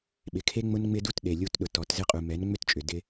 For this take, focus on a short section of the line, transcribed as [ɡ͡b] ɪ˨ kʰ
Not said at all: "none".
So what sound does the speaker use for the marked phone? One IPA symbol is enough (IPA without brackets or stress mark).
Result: ɓ